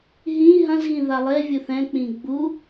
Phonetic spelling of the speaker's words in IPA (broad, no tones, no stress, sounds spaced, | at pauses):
ɦ ĩ ɦ ɐ̃ z ɣ ĩ ð a lˠ e vʲ u θ ɛ̃ k͡p ĩ ɡ͡b u